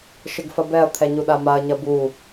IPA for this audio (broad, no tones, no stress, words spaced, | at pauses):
ʃɘɡfɐbɛɐ̯ t̪ʰɛɲuɗamaɐ̯ ɲɐbu